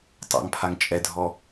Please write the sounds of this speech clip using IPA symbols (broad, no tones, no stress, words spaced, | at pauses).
tˤa̰ŋpʰaŋ t͡ʃʼɛdʱɔ